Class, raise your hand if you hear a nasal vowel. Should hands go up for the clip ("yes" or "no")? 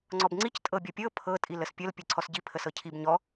no